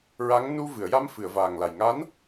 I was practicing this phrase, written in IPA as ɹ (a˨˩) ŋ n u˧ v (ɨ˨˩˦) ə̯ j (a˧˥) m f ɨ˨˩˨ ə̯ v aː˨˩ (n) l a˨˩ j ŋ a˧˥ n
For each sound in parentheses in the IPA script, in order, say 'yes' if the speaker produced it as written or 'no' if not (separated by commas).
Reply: no, no, no, no